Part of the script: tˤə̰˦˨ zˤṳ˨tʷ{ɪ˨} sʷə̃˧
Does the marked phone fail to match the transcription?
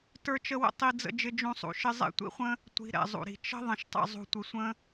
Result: no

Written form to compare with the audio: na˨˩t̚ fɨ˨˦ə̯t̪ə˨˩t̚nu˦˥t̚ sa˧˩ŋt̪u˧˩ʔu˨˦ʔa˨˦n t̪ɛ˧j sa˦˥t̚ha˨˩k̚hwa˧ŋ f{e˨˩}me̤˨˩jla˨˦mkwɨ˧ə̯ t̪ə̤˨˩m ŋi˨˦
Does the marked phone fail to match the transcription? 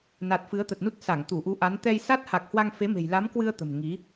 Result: yes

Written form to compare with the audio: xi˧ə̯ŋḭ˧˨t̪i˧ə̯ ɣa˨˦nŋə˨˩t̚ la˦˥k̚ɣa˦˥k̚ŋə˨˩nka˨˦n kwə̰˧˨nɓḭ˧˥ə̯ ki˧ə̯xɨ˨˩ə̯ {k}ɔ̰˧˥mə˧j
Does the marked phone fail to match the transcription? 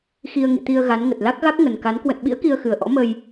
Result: yes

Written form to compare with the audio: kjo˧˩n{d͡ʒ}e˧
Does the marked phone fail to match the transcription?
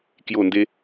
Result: yes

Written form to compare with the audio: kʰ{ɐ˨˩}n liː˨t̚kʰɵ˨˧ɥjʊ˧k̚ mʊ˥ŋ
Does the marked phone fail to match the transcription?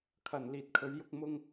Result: no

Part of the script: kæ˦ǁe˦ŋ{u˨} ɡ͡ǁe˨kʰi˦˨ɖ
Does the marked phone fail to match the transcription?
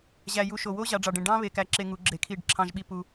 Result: yes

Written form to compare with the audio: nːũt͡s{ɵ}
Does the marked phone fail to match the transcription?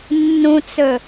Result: no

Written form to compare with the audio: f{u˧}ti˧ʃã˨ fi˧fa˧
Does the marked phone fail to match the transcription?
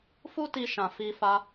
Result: yes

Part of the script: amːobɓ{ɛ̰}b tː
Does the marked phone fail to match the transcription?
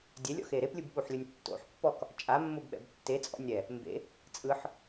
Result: no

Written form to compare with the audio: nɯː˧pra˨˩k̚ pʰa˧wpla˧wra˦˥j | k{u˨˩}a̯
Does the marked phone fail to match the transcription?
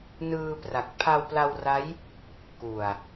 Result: no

